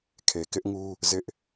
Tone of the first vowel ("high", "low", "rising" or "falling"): low